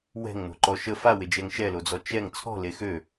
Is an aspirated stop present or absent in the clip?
present